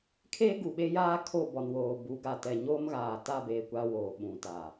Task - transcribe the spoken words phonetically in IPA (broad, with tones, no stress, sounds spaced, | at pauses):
kʰ eː˦ ɡ u˨ ɓ e˦ j aː˦ kʰ o˦˨ b ɔ˨ n w oː˨ b u˨˦ ɡ a˨ t ɛ˨ ɲ oː˦ m ɣ aː˨ t a˦˨ b eː˨ kʷ a˦ w oː˨ ɓ ũ˨ t aː˨